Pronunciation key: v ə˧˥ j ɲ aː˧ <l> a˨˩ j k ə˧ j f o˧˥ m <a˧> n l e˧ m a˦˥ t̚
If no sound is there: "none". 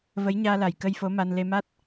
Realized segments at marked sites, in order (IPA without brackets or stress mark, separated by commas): l, a˧